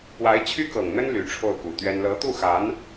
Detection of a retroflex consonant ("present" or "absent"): present